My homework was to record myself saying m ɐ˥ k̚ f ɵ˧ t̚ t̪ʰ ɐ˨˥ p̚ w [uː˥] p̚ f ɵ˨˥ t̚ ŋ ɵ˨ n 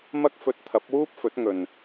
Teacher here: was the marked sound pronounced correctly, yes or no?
yes